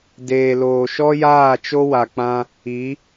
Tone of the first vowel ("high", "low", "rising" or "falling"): low